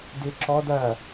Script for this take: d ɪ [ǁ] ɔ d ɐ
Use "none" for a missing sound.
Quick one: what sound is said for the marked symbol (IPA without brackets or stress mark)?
ǁ